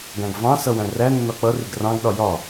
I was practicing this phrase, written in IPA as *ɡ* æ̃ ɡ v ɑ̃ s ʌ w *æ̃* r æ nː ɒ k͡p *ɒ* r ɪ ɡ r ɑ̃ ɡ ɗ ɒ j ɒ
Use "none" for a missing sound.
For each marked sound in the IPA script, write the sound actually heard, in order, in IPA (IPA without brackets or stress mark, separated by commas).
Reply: ɡ, æ̃, ʌ